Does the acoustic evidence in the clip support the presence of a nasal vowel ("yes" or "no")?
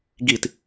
no